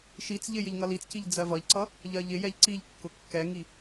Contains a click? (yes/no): yes